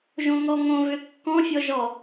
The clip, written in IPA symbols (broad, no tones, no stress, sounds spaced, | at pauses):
ʒ õ ŋ ɔ ŋ õ v ø kː ɔ̃ fʲ ɔ ʒ ɔ